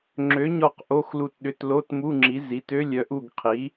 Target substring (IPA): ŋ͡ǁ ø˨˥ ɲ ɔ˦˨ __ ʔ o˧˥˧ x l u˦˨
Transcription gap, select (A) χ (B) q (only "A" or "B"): B